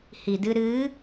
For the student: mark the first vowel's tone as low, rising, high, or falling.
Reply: low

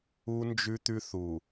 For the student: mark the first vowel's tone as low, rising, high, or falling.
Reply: high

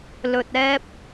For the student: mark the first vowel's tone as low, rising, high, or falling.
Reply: low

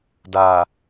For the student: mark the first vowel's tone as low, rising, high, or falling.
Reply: low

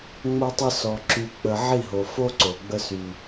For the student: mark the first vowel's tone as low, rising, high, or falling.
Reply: high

